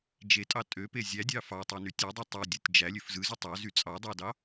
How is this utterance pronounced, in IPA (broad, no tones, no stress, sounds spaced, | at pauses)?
d͡ʒ e tʼ ɑ tʼ ø p e zʲ æ dʲ ɑ f ɑ tˤ y n y tʲ ɯ dˤ y tˤ ø dʲ ɯ tʲ d͡ʒ æ lʲ ø f z ɯ z y tˤ ɑ z y t͡sʼ ɑ dˤ ɑ d ɑ